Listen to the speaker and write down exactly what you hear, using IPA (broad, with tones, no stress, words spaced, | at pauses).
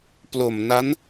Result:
plo˨˩mna˦˥n